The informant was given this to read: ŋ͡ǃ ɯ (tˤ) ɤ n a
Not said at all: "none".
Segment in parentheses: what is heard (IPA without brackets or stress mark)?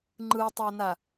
tˤ